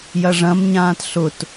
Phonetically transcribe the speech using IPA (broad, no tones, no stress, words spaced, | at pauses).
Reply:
jɐʐɐ̃mɲãːt ɬʊt